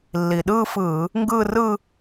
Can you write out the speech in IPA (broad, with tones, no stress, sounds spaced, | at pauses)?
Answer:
lː i˨˩ ɗ ɯː˥˧ f ɯː˧˩˧ | ŋ ɡ ɯː˥˧ r ɯ˥˧